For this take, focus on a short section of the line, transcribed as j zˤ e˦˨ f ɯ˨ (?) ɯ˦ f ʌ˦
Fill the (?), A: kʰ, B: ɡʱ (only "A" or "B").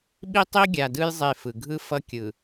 B